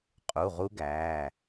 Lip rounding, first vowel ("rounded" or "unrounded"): rounded